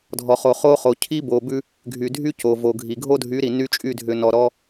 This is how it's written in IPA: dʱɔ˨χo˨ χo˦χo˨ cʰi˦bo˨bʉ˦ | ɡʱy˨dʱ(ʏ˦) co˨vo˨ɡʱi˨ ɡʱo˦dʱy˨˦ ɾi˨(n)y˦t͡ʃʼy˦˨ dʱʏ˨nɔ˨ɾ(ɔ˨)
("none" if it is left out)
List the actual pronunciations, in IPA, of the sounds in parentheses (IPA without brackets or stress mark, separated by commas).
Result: y˦, n, ɔ˦